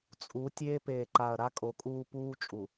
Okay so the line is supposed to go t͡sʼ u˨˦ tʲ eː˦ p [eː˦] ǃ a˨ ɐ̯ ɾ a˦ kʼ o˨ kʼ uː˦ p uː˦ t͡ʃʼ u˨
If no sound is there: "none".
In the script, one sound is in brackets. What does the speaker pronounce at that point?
eː˨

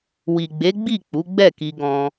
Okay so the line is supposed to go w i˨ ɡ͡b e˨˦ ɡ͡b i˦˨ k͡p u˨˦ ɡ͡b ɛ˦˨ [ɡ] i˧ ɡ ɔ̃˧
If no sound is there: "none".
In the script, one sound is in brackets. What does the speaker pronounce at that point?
k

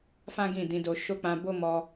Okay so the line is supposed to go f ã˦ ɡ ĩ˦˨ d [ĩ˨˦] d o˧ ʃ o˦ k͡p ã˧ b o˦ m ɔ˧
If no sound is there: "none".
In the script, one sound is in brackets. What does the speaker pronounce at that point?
ĩ˨˦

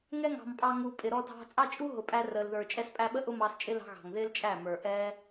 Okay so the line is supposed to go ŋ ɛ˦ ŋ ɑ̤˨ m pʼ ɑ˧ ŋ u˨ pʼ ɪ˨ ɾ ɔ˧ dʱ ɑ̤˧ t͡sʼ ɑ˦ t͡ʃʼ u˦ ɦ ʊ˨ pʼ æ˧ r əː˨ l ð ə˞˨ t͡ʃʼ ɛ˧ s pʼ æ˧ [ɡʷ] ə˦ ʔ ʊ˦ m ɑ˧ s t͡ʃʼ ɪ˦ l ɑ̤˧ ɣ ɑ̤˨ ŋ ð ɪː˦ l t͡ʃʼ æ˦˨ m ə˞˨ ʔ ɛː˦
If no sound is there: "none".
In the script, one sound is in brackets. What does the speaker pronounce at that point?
ɓ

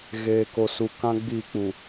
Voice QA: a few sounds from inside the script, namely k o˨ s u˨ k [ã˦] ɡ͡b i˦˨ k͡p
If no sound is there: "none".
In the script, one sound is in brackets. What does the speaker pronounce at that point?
ã˦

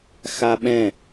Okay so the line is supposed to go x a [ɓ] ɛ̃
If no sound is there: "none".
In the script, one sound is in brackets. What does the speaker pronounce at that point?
ɓ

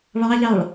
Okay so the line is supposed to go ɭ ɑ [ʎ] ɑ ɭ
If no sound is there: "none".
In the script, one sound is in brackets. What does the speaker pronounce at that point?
ʎ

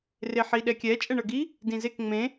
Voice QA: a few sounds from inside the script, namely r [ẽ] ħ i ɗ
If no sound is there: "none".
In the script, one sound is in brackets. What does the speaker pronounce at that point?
e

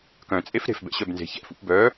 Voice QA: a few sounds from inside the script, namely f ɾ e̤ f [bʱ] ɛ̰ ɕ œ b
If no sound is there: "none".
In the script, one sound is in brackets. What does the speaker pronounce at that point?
b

